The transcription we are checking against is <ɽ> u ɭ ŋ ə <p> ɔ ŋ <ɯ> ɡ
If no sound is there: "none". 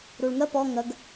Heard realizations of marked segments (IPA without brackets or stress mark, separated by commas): ɾ, p, ə